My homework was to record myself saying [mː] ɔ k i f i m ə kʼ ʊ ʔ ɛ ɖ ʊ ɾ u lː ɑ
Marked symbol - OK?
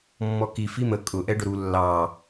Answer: yes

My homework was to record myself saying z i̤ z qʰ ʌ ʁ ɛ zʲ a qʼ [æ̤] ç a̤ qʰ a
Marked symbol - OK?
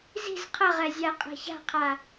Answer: no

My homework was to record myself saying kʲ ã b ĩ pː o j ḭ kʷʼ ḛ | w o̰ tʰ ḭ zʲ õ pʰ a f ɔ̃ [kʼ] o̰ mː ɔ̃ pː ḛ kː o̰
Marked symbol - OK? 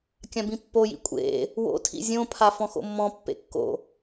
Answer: no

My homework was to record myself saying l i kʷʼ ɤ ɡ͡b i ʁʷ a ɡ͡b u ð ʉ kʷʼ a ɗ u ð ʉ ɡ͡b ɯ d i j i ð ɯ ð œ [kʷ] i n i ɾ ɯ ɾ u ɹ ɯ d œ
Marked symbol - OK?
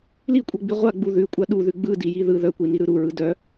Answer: yes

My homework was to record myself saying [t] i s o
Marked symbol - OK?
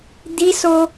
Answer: no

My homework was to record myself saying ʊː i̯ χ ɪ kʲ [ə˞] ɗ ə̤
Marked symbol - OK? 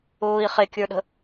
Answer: yes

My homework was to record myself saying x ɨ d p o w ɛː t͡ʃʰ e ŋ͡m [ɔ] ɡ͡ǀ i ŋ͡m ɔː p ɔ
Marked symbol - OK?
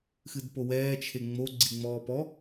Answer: no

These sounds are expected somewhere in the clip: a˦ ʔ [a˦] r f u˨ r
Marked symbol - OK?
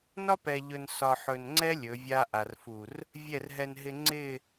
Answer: no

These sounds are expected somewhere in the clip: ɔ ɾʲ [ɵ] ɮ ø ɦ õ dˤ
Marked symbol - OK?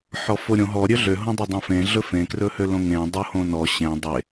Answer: no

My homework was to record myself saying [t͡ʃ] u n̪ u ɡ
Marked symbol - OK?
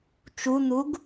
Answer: yes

